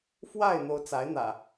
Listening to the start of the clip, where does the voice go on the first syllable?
falling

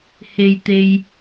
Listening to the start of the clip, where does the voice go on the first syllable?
low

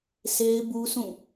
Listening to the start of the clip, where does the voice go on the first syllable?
high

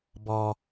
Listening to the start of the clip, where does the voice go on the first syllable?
low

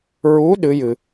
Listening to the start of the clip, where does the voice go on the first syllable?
rising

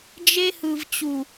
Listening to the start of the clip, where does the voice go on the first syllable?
high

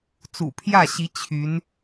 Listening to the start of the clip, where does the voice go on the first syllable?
low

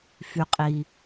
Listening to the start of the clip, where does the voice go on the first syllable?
low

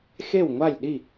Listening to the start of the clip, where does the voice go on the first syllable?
falling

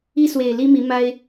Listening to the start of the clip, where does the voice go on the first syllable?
high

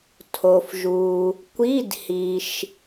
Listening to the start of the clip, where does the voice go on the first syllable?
low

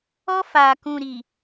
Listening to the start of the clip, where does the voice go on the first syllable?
high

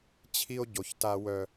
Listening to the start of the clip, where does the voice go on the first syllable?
high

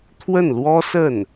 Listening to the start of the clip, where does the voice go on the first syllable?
falling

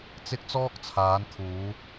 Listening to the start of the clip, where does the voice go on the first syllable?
high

